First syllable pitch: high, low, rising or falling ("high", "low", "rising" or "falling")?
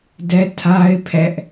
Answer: high